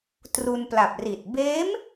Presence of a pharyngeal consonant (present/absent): absent